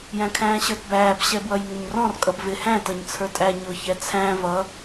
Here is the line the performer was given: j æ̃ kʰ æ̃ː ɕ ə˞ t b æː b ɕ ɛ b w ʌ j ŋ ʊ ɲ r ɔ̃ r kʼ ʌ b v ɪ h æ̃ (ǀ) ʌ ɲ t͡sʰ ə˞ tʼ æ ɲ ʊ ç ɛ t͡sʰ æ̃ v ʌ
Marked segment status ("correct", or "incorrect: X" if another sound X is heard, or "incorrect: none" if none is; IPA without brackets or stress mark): incorrect: t